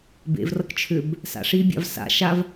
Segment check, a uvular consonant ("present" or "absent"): absent